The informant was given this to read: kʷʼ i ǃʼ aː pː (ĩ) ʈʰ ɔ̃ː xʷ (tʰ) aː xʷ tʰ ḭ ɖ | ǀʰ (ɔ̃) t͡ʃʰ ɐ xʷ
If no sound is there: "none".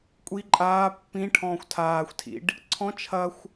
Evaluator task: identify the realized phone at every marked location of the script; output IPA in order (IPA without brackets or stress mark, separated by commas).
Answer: ĩ, tʰ, ɔ̃